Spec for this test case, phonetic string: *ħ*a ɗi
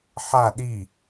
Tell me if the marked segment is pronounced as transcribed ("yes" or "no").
yes